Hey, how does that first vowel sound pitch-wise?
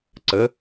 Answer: rising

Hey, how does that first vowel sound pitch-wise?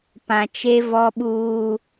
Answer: low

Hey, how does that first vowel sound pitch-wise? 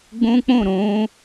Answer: high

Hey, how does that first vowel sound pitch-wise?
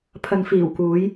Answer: low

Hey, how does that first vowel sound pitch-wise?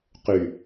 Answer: low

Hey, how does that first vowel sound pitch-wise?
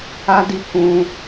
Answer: high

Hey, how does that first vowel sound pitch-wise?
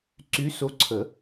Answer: rising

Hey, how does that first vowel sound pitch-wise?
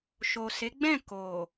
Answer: low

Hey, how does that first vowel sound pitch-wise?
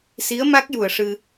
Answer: rising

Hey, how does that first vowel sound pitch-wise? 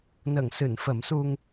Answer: low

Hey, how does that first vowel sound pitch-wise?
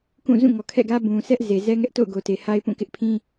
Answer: falling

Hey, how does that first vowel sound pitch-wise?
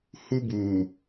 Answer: high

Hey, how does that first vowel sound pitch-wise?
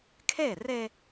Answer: falling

